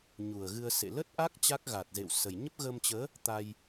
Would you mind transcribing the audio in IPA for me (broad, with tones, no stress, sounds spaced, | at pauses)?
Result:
ɲ u˨˩ ə̯ ɣ ɨ˧ ə̯ s ḛ˧˨ l ə˦˥ t̚ ʔ a˦˥ k̚ t͡ɕ a˦˥ k̚ ɣ a˨˩ t̚ z ḛ˧˨ w s ə˨˩ j ɲ ə˦˥ p̚ ɣ ə˧ m t͡ɕ əː˨˦ | t̪ a˧ j